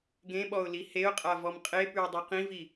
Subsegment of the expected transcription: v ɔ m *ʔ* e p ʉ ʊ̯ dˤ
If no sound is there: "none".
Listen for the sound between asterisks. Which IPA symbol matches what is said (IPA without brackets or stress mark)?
qʼ